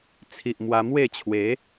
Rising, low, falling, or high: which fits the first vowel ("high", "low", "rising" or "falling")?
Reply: low